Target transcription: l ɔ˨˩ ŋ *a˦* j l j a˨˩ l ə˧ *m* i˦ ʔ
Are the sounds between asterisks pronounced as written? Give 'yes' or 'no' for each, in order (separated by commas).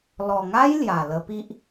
yes, no